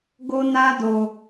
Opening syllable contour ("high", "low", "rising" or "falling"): high